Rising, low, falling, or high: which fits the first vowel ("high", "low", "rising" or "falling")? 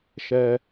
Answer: low